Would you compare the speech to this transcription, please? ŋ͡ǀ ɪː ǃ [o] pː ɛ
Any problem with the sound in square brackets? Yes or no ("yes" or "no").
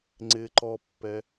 yes